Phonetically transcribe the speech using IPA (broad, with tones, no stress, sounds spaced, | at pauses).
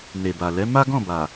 n e˨ b a˨ l ɛ˨˦ m a˦ ɡ ɔ̃˦˨ b a˨